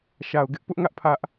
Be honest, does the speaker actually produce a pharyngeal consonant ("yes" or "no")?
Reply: no